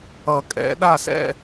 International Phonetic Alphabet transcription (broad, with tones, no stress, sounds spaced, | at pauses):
ʌ˨˩˦ kʼ ɛ̰˨˩˦ ɗ a˦˨ s ɛ̰˦˨